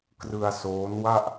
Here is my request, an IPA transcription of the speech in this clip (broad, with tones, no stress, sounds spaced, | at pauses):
k r ɯ˧ a̯ s oː˦˥ n w a˥˩ ʔ